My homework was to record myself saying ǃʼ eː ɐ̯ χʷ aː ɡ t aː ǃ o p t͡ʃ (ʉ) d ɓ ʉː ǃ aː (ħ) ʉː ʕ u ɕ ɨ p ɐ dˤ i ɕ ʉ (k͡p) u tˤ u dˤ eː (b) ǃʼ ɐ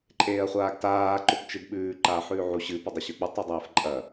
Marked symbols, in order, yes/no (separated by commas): no, yes, yes, no